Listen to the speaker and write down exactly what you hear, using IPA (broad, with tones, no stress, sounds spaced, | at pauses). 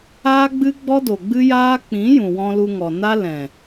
aː˦ ɡ͡b ɨ˦ ɡ͡b ɔ˦ d o˨ ɡ͡b ɨ˦ j aː˦ k͡p ĩ˨˦ j ũ˨ w ɔ̃˧ l u˧ ŋ ɔ˨ n a˦ l ɛ̃˨